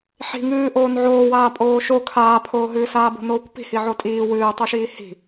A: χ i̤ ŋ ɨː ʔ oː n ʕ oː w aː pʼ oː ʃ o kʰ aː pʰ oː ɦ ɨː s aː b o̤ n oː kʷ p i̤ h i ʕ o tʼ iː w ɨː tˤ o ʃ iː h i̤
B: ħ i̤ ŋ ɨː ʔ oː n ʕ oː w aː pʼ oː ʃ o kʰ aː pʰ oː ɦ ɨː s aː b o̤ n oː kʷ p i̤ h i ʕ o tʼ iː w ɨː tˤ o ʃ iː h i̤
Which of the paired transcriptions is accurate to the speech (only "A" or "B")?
B